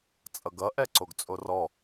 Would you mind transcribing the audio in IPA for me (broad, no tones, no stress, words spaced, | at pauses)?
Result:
t͡sʼʌɡʌ ʔɛǀoɡt͡sʼorɔ